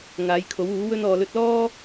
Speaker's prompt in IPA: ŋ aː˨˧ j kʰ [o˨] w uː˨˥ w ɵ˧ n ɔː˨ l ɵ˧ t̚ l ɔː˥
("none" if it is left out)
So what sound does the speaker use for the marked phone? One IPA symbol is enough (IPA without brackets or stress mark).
o˨˥